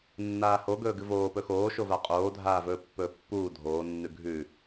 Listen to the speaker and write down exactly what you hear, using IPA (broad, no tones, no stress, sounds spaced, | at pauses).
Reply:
nː aː h o ɡ ɵː ɡ ɨ v oː p ɵ x oː ʃ o v a qʼ oː dʱ aː v ɵː pː ɵː pː uː dʱ oː nː ʉ ɡʱ ʉ